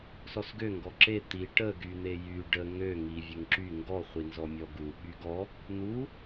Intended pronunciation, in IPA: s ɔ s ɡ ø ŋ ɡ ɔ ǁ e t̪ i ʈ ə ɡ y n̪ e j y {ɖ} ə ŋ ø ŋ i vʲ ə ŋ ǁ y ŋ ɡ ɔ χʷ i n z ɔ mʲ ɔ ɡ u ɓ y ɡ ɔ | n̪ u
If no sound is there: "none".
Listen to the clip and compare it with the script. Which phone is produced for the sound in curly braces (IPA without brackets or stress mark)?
ɖ